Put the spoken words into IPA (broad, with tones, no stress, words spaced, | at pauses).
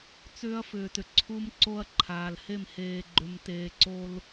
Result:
t͡sʏː˦ɐ̯fʏː˨tʏ˨ ǀʰu˦mǀo˦ɐ̯ǃʰaː˨l he˦˨mheː˨ɡ͡ǃʏ˨mteː˨ ǀo˦l